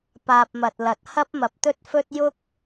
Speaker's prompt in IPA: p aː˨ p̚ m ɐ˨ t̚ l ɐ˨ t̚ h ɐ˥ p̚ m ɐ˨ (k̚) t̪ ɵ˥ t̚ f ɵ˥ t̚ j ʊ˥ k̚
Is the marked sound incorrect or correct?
incorrect